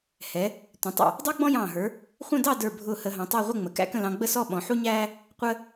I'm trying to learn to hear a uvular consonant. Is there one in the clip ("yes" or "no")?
yes